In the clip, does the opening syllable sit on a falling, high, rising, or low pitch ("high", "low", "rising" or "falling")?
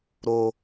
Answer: low